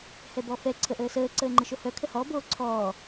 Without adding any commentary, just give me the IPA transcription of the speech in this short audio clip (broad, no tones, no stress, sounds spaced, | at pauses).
h ɛ b ɔ f ɛ ǀʰ ə ʔ əː s əː ǀ əː ŋ͡ǃ ə ʃ o h œ kʰ ə h ɔ b oː ǀʰ ɔː